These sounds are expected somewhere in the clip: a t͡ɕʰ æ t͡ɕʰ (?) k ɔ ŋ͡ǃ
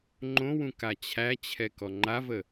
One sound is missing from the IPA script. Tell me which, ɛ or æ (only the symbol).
ɛ